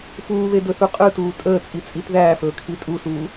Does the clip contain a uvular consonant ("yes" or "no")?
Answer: yes